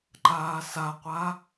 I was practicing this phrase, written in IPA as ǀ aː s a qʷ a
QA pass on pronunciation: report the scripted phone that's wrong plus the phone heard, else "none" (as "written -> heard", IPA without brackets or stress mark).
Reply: ǀ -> ǃ